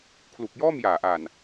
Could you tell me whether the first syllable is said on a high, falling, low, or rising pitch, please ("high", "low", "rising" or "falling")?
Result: low